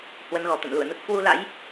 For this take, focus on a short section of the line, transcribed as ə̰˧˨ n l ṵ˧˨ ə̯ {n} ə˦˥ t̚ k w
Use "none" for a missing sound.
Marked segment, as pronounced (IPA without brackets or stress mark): n